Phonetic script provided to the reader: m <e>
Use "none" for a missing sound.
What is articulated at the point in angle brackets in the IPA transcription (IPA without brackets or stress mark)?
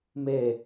e